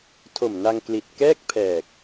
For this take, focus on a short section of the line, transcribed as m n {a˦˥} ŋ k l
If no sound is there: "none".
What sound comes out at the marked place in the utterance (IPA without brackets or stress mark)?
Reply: a˧